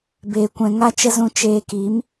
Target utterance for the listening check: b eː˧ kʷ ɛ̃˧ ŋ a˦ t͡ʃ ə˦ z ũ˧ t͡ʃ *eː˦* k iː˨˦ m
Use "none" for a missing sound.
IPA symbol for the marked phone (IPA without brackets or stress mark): eː˧